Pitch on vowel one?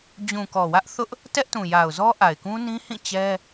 low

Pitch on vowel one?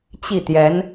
falling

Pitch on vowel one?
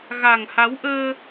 low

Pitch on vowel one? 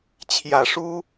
low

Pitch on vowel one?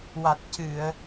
low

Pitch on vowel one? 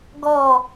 falling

